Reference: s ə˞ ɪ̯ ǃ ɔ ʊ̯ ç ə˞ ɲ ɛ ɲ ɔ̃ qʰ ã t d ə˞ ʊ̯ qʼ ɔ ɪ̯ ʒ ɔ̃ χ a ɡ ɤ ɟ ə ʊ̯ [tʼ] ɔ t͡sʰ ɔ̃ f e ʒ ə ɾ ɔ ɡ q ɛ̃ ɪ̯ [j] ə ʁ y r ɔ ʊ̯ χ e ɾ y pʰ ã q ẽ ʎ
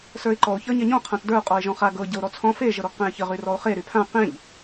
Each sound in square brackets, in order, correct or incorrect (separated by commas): incorrect, incorrect